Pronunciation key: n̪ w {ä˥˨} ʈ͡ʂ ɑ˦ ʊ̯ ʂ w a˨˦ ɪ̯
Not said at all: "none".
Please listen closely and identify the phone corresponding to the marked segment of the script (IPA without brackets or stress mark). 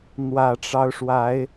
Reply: ä˨˩